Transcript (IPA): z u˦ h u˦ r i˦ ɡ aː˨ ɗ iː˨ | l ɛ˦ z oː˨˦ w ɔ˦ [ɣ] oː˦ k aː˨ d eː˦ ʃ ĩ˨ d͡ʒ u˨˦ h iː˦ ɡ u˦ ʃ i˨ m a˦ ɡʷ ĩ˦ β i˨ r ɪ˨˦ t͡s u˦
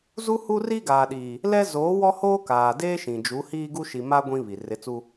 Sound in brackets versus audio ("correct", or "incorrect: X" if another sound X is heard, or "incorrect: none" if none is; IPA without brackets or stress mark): incorrect: h